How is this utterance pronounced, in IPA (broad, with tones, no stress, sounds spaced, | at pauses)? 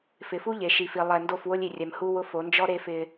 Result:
f ɪ˨ f u˦ ʎ e˨ ʃ i˨ f i˨ lˠ ɛ˨ n d o˦˨ f w ʊ˦ lʲ i˨ rʲ ɛ˨ m h u˦ w ʊ˦ f o˨˦ n d͡ʒ ɔ˦ ɾ e˦ f ɪ˦